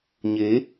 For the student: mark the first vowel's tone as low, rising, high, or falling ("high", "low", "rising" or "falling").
rising